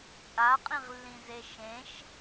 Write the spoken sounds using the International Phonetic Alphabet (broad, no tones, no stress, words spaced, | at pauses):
t͡sʼaqʼĩʁlːĩze ʃẽʃ